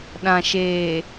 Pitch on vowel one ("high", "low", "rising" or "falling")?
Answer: low